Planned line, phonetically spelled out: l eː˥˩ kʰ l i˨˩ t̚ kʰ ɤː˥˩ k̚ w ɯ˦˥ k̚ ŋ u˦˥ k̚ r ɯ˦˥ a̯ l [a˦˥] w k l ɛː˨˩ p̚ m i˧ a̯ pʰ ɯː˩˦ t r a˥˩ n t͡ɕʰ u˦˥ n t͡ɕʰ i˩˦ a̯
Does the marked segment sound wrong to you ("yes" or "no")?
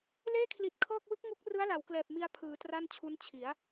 yes